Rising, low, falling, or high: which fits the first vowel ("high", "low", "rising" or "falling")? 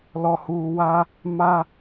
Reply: low